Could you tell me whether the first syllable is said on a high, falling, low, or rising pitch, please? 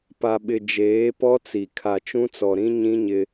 low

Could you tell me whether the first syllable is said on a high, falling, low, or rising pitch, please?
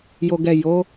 low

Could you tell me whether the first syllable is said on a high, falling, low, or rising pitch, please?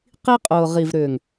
high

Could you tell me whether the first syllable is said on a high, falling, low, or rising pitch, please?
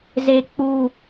low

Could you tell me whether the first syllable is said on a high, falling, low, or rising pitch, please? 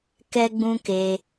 high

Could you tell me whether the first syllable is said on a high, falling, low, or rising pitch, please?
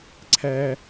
high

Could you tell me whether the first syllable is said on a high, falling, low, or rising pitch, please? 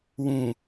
low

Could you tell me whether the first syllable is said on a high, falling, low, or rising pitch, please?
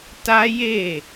high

